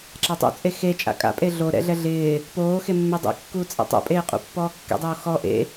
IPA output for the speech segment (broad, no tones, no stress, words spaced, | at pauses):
ǁatˤṵt͡sʼe xet͡ʃʼa̰ kʼa̰pʼe ɮo ɾɛ̰ɮɛ ɮɪː | poː xemːedˤḛkːuː t͡sʼḛtˤo̰pʼeː qʼṵpːɔːkːḛdˤoː xɔ ʔḛ